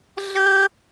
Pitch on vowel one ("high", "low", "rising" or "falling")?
high